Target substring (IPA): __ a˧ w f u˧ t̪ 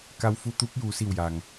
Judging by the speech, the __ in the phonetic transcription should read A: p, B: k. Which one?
B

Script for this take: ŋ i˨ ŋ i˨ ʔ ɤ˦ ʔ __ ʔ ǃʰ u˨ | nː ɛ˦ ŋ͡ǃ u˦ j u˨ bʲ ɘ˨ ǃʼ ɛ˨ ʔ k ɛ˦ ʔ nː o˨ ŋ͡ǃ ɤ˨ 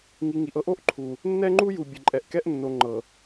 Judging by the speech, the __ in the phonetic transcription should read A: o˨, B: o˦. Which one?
B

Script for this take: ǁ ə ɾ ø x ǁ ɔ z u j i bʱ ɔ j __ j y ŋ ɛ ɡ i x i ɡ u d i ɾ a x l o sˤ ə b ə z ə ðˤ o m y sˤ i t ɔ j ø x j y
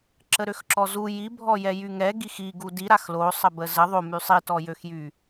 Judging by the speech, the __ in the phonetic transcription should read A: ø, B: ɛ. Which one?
B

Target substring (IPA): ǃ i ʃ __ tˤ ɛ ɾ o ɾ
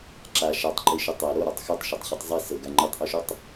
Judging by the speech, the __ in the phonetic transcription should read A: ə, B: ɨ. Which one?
A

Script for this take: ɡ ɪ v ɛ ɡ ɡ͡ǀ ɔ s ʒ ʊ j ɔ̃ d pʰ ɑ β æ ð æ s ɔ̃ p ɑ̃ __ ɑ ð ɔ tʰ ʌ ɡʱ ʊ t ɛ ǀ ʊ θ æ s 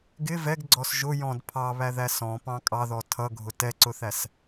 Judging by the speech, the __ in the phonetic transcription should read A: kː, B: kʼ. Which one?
B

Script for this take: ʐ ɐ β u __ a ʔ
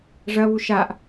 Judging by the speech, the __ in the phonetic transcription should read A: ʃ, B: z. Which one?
A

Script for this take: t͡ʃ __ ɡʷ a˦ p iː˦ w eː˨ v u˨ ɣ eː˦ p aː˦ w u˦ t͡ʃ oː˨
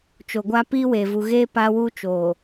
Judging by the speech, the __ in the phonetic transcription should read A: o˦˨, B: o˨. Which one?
B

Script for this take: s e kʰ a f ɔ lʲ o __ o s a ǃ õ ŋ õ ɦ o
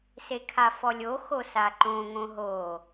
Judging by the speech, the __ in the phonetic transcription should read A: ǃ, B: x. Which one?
B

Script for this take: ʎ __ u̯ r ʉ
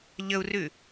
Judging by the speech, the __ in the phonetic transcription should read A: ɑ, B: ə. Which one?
B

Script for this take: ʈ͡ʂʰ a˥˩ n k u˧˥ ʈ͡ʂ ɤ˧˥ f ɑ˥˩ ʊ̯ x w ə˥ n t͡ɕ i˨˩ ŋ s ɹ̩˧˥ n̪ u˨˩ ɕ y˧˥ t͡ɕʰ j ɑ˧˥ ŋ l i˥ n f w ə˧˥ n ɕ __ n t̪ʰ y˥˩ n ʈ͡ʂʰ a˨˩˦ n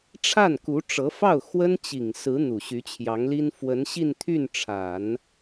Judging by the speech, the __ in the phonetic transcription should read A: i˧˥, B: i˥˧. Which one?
B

